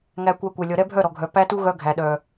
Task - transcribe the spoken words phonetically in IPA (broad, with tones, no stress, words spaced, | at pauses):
ŋæ˧kʷæ˧kʷɛ˨ lʲɔ˨ɾɛ˦bʱœ˦˨ ɾɔ˨ɡʱœ˨ pæ˦tu˦ ɣœ˦ ɡʱæ˨ɗœ˨